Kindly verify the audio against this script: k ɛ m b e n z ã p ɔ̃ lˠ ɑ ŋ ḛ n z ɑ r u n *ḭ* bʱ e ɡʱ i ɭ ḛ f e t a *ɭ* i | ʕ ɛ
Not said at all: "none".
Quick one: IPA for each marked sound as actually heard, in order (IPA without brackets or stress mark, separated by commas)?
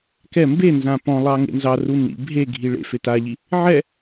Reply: ḭ, ʎ